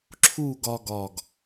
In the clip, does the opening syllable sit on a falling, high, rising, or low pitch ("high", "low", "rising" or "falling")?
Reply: falling